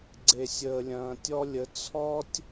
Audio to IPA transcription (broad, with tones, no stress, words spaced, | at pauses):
ɡ͡ǀe˨sʲəː˨lʲɐ̃ː˨tʲɔ˦ lʲə˨˦ t͡sʰɔ˦tʲ